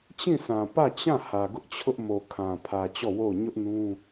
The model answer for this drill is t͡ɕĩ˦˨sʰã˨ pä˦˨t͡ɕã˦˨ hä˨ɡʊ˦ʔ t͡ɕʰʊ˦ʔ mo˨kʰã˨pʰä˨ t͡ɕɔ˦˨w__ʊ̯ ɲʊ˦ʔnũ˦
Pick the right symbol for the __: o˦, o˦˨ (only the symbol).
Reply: o˦˨